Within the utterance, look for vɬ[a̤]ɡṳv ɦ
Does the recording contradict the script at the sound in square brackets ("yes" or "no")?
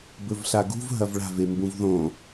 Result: yes